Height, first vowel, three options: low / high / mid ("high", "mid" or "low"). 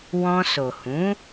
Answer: mid